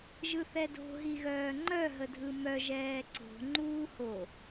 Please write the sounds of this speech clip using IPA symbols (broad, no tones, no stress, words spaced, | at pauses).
ʒɯθɛdo̤ ɦiɣœːŋ͡ǃœ ɦədʱɯmœ ʒɛːǀo̤ ŋ͡ǃuːho